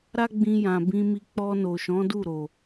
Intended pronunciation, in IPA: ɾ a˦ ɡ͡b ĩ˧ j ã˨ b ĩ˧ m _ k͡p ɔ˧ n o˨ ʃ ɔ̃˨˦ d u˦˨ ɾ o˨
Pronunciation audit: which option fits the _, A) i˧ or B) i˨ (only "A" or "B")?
A